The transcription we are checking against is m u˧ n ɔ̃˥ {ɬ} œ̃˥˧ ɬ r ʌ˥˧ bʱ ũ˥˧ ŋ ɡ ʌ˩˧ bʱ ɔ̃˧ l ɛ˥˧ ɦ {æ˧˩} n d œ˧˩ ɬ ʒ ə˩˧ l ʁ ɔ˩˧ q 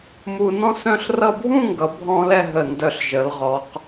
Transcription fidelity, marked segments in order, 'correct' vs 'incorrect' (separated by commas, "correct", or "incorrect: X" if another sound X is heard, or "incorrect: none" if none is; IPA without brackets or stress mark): incorrect: s, incorrect: ə˧˩